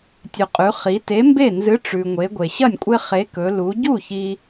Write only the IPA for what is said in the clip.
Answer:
tʲʉ˩qʼʉ˩˧ χi˩˧te˨˥mbe˥˩ nzɨ˨˥ʈ͡ʂʉ˩ŋʷe˩˧ ɡʷe˩ɕɐ˥˩nʲkʷʼe˦ χe˨˥kɵ˩˧ lu˩˧ ɟu˥˩ çi˦

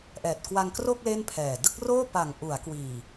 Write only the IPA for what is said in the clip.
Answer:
ʔɛː˨˩t̚kwa˧ŋkro˥˩k̚ le˥˩npʰɛː˨˩ dɯ˥˩k̚roː˥˩pa˨˩ŋ ʔu˩˦a̯ kwiː˨˩

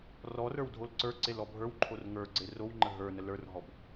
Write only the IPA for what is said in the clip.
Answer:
rɔrə˞w dʱolǀə˞ǀel ɔbʱə˞wǃʰor ŋə˞ɡ͡ǀe rowŋ͡ǃə ɦə˞ nələ˞rɦɔb

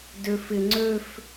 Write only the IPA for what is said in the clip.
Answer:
døf ɪ ŋ͡ǀøf

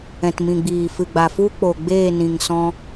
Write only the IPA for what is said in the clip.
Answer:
ɛ̃˨tmĩ˨ ɡ͡biː˨fɨ˨ɡ͡ba˨ fu˦k͡po˨ɡ͡beː˦˨nĩ˨ŋ sɔ̃˧

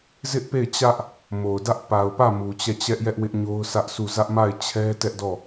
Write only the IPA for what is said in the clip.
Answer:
zɪ˦ʔpe˦˨ɪ̯t͡ɕä˦ʔ | mo˨ʊ̯dä˦ʔ pa˨ʊ̯pä˦˨ mu˨t͡ɕɛ˦˨t͡ɕɛ˦ʔjɛ˦ʔ wɪ˦ʔɲo˦ʊ̯sʰä˦ʔsʰu˦˨ zä˦ʔma˦˨ɪ̯t͡ɕʰɛ˦ tɛ˦ʔdɔ˦˨

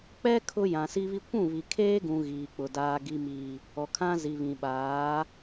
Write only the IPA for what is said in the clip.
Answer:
k͡pɛ˦ kʰʊ˦ jã˨si˦βi˦ kʷũ˦˨βi˨kʰeː˦ɡũ˨ ɣiː˨k͡pʊ˨ daː˨ɡi˨miː˨ | ɔ˨kʰã˦zi˨ βĩ˨ɓaː˨˦

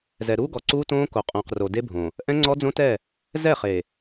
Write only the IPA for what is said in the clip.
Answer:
zɛ˨ɾuː˦ɡɔ˨ ǀuː˦tõː˦ ko˨qʼõː˨qro˨ de˦bʱõ˨ | ʔɛ̃˦ŋ͡ǀɔ˦d͡zõ˦tɛ˦˨ | zɛ˦˨χe˨

